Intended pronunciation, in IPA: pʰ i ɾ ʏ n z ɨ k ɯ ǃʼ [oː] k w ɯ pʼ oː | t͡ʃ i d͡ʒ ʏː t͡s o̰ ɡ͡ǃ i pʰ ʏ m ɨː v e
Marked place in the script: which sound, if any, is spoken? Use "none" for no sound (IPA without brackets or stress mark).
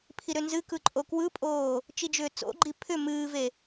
o